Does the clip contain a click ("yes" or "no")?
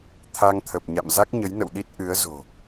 no